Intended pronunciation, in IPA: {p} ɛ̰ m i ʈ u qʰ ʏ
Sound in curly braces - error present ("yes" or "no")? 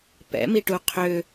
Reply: no